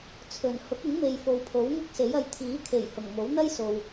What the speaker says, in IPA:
t͡sʰ ɵ˨˩ n h ʊ˨˥ k̚ ɪ˨˥ ŋ m e˨ j f o˨ w pʰ o˨˥ w ŋ ʊ˥ k̚ s e˨˥ j ɐ˧ j t̪ʰ iː˨˥ kʰ e˨˩ j h ʊ˨˩ ŋ m o˨˥ w n̪ ɐ˥ j s o˨ w

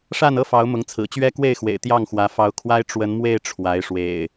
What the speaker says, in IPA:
ʂ a˥˨ n ɤ˦ f ɑ˨˦ ʊ̯ m ʊ˨˦ ŋ t͡sʰ ɹ̩˨˩ t͡ɕ ɥ ɛ˦ k w e˥˨ ɪ̯ x w ḛ˨˩ ɪ̯ t̪ j ɑ˥˨ ŋ x w ä˨˦ f ɑ˨˦ ʊ̯ kʰ w a˦ ɪ̯ ʈ͡ʂ w ə˨˦ n m w e˥˨ ɪ̯ ʈ͡ʂʰ w a˨˦ ɪ̯ ʂ w ḛ˨˩ ɪ̯

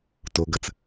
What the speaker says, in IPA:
t o ɡ ɐ t͡s

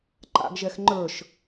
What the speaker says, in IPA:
ǃ a̰ ɡ ʒ ɛ x ŋ͡ǃ ə˞ ʃ

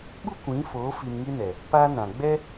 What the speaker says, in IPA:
ɓ u˦ kʷ ĩ˨˦ f oː˨˦ f i˧ m ŋ i˦ n ɛ˨ | p aː˦ n ã˨ ɡ͡b ɛ˦

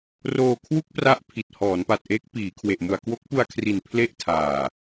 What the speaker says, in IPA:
r oː˧ kʰ w u˥˩ k̚ p r a˦˥ ʔ pʰ i˨˩ t̚ h ɔː˩˦ n p a˨˩ t̚ ʔ eː˦˥ k̚ p iː˩˦ kʰ w e˨˩ ʔ m u˨˩ a̯ k w o˦˥ k̚ p u˧ a̯ kʰ r i˨˩ n pʰ l e˥˩ ʔ tʰ aː˨˩

